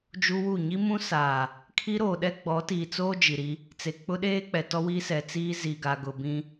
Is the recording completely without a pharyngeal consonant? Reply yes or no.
yes